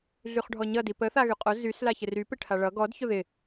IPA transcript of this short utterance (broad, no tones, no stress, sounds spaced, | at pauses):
ɮ y χ ɖʱ ɔ ɲ ʌ d i p ə θ a ɣ y qʼ o z y s l a ç ɪ r y p ɪ ʈʰ a ɭ ʌ ɡ ɔ d ç ʊ ð ɪ